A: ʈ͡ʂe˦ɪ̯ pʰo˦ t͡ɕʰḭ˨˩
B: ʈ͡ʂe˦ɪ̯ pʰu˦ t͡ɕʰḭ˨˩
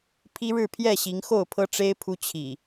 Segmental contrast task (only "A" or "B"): B